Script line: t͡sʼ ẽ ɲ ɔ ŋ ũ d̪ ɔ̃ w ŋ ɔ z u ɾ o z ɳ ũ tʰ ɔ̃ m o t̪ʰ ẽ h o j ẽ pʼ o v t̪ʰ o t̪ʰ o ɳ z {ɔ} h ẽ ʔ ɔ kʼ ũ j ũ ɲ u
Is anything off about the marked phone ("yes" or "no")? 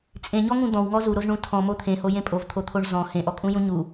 yes